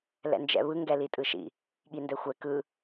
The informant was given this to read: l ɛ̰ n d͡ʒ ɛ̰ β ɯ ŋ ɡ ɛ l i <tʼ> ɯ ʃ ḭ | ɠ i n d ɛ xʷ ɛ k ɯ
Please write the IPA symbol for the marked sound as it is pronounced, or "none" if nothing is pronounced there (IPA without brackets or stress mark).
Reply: tʼ